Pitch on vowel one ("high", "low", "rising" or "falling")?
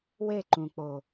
falling